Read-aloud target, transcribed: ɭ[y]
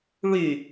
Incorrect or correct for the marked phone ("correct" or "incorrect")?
correct